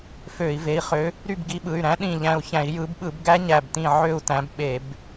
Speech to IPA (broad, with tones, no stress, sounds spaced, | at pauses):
f ø˧˩˧ i̯ v e˩˧˩ i̯ χ ø˨˦ | ɾ y˦˨ b ɡ i˨˦ ɓ ɯ˩˧˩ y̯ ɾ æ̃˦˥ ɗ ĩ˦˨ ʎ æ̃˦˨ u̯ ç æ̃˧˩˧ i̯ j ɯ˨˦ b ɓ ɯ˧˩˧ b ɡ æ˦˥ ɲ æ˦˨ b t ĩ˦˨ ʕ ø˦˨ u̯ t æ̃˨˦ b ɓ e˧˩˧ b